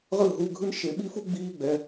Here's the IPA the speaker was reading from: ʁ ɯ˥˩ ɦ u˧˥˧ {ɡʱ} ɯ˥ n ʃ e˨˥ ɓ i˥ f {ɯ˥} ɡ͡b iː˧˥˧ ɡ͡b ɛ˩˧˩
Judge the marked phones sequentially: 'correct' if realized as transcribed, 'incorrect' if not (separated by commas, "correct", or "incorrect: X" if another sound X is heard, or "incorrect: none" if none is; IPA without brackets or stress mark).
correct, incorrect: u˥